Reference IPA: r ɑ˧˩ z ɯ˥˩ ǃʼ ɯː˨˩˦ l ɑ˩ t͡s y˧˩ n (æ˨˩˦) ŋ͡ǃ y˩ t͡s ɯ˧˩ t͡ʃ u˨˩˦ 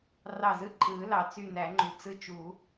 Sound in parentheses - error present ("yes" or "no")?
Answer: no